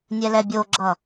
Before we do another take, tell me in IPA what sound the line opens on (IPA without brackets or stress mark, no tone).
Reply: nʲ